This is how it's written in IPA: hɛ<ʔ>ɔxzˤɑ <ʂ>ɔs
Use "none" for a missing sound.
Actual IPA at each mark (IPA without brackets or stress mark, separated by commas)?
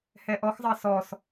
ʔ, s